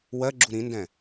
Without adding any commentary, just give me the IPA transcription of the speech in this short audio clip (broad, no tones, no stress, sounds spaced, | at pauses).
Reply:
w ɜ ɡ͡ǁ u ɾ ĩ n d ɛ̃